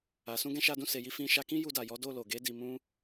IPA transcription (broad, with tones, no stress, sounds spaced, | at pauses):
a˨ s ũ˧ ɡ ɛ̃˧ ʃ a˧ d ũ˧ s e˨ j i˧ f ĩ˧ ʃ a˧ k ĩ˦ j u˧ d a˨ j ɔ˨˦ d o˦˨ l o˨ ɡ e˨˦ d i˧ m ũ˦